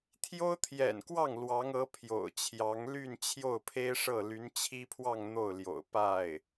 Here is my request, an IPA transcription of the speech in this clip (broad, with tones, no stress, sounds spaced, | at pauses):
t̪ʰ j o˥ ʊ̯ t̪ʰ j ɛ̰˨˩ n k w ɑ˥˩ ŋ l w ɑ˧˥ ŋ ɤ˧˥ pʰ j o̰˨˩ ʊ̯ t͡ɕʰ j ɑ˧˥ ŋ l y˥˧ n t͡ɕʰ j o˥˩ ʊ̯ pʰ e˥ ɪ̯ ʂ ɤ˥˩ l y˧˥ n t͡ɕʰ i˥ pʰ w ɑ˥˧ ŋ n̪ o˥˩ ʊ̯ l j o̰˨˩ ʊ̯ p a˥˩ ɪ̯